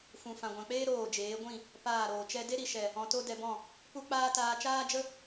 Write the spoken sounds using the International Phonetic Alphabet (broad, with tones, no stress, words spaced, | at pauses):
fũ˨ fã˨ɡʷã˨k͡peː˦ ɾoː˦˨d͡ʒeː˨˦ ɡʷĩ˦˨ | paː˦˨ɾoː˨t͡ʃɛ˦ de˦ɾi˨ʃɛ˨ | ɔ̃˧to˦dɛ˧bɔ̃˦˨ | pu˦k͡paː˦ taː˧t͡ʃaː˦d͡ʒə˦